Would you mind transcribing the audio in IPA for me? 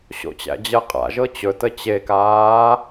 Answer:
ɕ o̰ t͡ɕ æ̰ d͡ʑ ɜ qʼ a̰ ʒ ɤ t͡ɕ ɵ t ə t͡ɕ e k aː

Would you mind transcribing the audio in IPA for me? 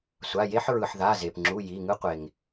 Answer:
sʷ a˩˧˩ j e˦ ħ ɹ ɯ˩ ħ ð a˩˧˩ z e˩ p ŋ͡ǁ u˩˧˩ j i˩˧˩ ŋ ɯ˦ qʷ e˩ ŋ

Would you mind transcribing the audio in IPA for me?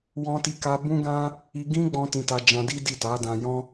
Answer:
w ɔ̃˦ t i˦ k a˦ b ũ˦ ɡ ã˦ | i˧ ɡ ĩ˦ ɡ͡b ɔ̃˦ t ĩ˧ t a˧ d͡ʒ ã˧ d i˦ d i˦˨ t a˨˦ d ã˧ j ɔ̃˦

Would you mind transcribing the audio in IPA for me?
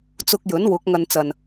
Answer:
t͡s ʊ˧ k̚ j ɵ˨˥ n w ʊ˨˥ k̚ ŋ ɐ˧ n t͡s ɐ˨˩ n

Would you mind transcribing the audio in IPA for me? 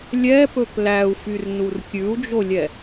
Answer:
lʲ ɛ p ɵ k l æ u̯ f y r n u r kʲ ʉ u̯ d͡ʒ o lʲ ɛ

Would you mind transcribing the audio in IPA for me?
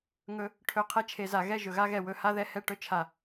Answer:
ŋ ɵ˦ | ʈʰ ɵ˧ qʰ ɛ˧ t͡ʃʰ e˨ z a˨ ɣ ɛ˦˨ ʒ ɵ˨ ɣ a˧ ɣ ɛ˨ w ɵ˧ h a˦ ð ɛ˧ h ɛ˦˨ ʈ ɵ˦ t͡ʃʰ a˨

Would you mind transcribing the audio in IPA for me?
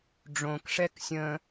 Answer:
ɖ͡ʐ õ k ʂ ɛ k sʲ ə̃

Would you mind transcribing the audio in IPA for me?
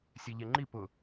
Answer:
sʲ ɛ ʎ ɛ ŋ͡ǃ i p ʊ

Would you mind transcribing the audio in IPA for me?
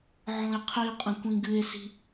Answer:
ʕ ɔ̃ e̯ qʰ i qʼ ə̃ kʷ ĩ ɡ ɨ e̯ s i̤

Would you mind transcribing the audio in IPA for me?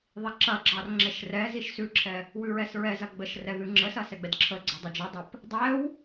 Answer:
ðˤ i ǁ ɐ ɡ͡ǁ ɑ r ŋ͡ǁ ɛ ʃ r ɛ z i ʃ s ʉ ǁʰ ɛ | w ʉ ɹ ɛ s ɹ ɛ z ɐ ɡ͡b ə ʃ r ɛ ð ʉ ŋ͡ǁ ə s ɐ s ɛ ɡ͡b ɛ d ǁʰ ə ɡ͡ǀ ɑ dˤ i d͡ʒ ɐ dˤ ɐ p | dˤ ɛ w

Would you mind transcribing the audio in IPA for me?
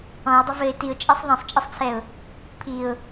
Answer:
ɔ̃ ɪ̯ dˤ ə v ɘ ɪ̯ t i ʊ̯ t͡ʃʼ ɛ sˤ ðˤ ɛ̃ sˤ t͡ʃʼ ɘ sˤ t͡sʰ ɛ ʊ̯ | pʰ i ʊ̯

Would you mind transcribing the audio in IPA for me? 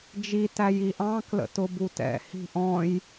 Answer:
d͡ʒ i t æ j i ʔ ɑ̃ k l ə̰ t ʊ b u t ɛ̰ h i̤ ʔ ɔ̃ j

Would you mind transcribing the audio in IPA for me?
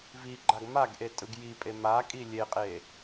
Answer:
v i ɡ͡ǃ a ɡ m a ɡ ʔ e tʼ ɯ ɡ j i pʼ e m a kʼ i lʲ e qʼ e

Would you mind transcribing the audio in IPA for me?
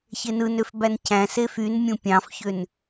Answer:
ç e n ɯ n ø f b æ n cʰ æ̃ s e f y n mʲ ũ pʲ ɑ̃ f ç ø n

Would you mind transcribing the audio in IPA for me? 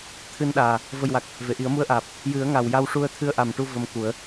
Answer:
t̪ʰ ɨ˧ n ɗ aː˨˩ | v ə˨˩ j w a˨˩ k̚ | v e˨˩˨ ʔ i˨˩˦ ə̯ m u˧˥ ə̯ ʔ aː˨˩ p̚ | j ɨ˨˩˦ ə̯ ŋ a˨˩ w j a˧ w ʂ u˧ ə̯ t̪ʰ ɨ˧ ə̯ ʔ a˨˩ m ʈ u˧ v ə˧ m k u˨˩˦ ə̯

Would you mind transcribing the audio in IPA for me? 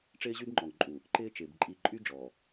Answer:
ʈ͡ʂ ɪː˦ ʑ y˦ b ŋ͡ǃ ɔ˨ ŋ ǃʼ u˨ | ǃ ɪː˦ t͡ʃ ɪː˨ b ǃʼ i˨ ǃʼ y˦ d͡ʒ ɔ˨

